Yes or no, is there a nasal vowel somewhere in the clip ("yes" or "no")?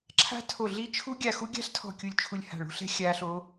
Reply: no